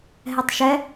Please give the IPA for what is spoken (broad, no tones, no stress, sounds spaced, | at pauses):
ɦ ɛ tˤ ʃ ɛ